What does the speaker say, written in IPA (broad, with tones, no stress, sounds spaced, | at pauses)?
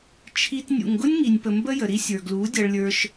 t͡ʃʰ i˧ t nʲ ṵ˨ ŋ ɡ ʊ˦ nʲ ŋ i˨ nʲ p ə˨ m b ə˦ j ə˨ ɾ i˦ sʲ ə˞˨ ɡ l u˨˦ dʲ ʌ˧ ɭ lʲ ə˞˧ ʃ